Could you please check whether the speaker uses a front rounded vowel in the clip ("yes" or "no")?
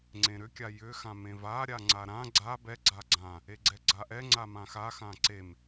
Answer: yes